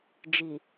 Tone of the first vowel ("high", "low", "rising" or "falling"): low